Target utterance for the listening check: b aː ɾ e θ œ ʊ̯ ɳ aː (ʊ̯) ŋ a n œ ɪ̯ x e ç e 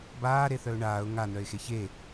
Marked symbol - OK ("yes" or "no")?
yes